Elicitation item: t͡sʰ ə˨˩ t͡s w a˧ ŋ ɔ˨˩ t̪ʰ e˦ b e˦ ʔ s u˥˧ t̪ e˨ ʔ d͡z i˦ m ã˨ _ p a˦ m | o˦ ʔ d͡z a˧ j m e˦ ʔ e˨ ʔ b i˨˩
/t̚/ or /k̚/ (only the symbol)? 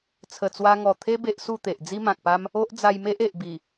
k̚